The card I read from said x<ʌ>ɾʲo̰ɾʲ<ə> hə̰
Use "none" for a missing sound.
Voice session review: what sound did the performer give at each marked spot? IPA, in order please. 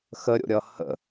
ə, ʌ

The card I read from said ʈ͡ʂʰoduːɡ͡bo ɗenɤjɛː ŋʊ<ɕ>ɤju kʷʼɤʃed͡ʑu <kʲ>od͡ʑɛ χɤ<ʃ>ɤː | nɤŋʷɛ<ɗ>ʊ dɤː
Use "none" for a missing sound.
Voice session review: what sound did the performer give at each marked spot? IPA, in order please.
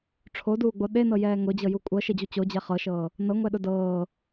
d͡ʑ, t͡ɕ, ʃ, ɗ

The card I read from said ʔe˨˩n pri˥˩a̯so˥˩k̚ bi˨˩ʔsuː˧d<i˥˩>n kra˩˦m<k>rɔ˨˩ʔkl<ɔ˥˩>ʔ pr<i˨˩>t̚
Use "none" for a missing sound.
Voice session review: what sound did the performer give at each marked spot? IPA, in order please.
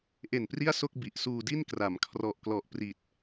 i˥˩, kʰ, ɔ˨˩, i˨˩

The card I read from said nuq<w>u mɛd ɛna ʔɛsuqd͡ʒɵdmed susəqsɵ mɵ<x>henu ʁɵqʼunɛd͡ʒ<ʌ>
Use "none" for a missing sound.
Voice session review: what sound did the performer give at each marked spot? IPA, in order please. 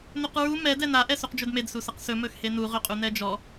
ɹ, x, ɔ

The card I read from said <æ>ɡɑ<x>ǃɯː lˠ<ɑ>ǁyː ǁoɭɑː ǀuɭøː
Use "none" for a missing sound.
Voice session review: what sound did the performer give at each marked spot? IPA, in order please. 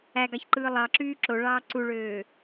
æ, ç, ɑ

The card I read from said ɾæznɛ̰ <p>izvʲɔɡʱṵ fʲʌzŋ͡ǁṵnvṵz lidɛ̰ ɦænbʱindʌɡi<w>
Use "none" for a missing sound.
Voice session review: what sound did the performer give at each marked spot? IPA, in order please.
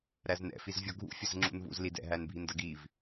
f, v

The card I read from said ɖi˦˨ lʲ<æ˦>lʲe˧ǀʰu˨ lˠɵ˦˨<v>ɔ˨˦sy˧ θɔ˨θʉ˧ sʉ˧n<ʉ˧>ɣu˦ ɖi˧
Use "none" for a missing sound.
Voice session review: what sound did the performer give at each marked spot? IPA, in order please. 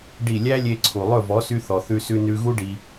æ˦, v, ʉ˧

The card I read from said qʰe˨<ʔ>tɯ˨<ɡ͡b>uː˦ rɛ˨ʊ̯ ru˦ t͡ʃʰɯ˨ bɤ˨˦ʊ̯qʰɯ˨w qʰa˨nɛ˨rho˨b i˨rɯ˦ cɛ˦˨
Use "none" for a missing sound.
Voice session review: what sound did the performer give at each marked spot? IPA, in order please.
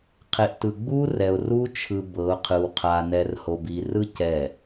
ʔ, ɡ͡b

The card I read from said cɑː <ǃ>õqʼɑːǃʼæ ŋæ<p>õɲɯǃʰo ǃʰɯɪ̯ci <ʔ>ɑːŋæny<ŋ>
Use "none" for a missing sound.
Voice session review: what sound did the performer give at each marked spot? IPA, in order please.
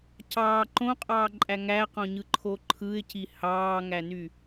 ǃ, q, h, none

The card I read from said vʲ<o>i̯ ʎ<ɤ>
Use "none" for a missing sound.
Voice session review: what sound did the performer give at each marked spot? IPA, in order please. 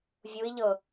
u, ɤ

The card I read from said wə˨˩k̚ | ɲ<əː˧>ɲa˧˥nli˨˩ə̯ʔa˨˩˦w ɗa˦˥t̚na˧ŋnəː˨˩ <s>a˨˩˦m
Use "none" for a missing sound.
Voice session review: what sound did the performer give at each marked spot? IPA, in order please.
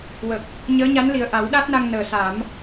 əː˧˥, s

